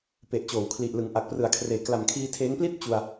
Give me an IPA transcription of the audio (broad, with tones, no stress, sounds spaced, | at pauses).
p e˨˩ ʔ t͡ɕ oː˩˦ w kʰ l i˨˩ ʔ l ɯ˩˦ ŋ ʔ a˨˩ k̚ p r ɯ˩˦ a̯ kʰ r eː˩˦ k l a˨˩ m kʰ iː˧ tʰ eː˦˥ ŋ p l i˥˩ t̚ t͡ɕ u˧ a̯